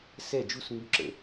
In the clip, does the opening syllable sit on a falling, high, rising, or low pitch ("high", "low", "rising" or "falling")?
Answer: falling